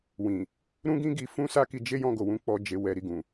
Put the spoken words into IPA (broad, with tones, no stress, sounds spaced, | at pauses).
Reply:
w ĩ˨ | ɾ ũ˦ ɡ ĩ˦ ɡ i˧ f ũ˦ s a˦ k i˧ d͡ʒ e˦ j ɔ̃˦˨ ɡ o˨ w ũ˨˦ k͡p ɔ˧ d͡ʒ e˧ w ɛ˧ ɾ i˨ ɡ ũ˨